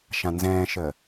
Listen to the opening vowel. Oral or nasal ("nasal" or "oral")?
nasal